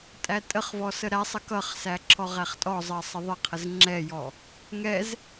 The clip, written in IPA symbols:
tʼ æ tʼ ə χ v ɔ s ə ɾ æ sˤ ə k ʌ χ s æ ǁʰ ɔ ʁ æ χ tʼ ɔ zˤ ɜ sˤ ə ðˤ ə qʰ ə z ŋ͡ǁ ɛ j ɔ | ŋ ɛ z

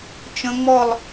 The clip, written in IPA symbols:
t͡ʃ ə̃˦˥ ŋ͡m ɔ˥˧ lˠ

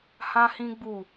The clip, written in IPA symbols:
h ã˦ h ĩ˦ ɡ͡b u˦˨

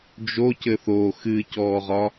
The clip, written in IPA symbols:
d͡ʒ o c ɘ θ o x ɨ c ɔː ʁ ɒ

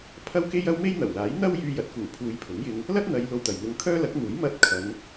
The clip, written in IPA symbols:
pʰ ɐ˥ w k e˥ j ɐ˥ w m e˥ j n̪ ɐ˨˩ w l aː˨˥ j n̪ ɐ˥ w j yː˧ j ɐ˨˥ t̚ k uː˨˩ pʰ uː˨˧ j pʰ ʊ˨˥ ŋ j ɪ˧ ŋ | l ɐ˥ t̚ n̪ ɐ˨˧ j l o˧ w t̪ ɐ˨ j n̪ ʊ˧ ŋ kʰ œː˥ l ɐ˨˥ k̚ n̪ uː˨˥ j m ɐ˧ t̚ kʰ ɐ˨˧ n

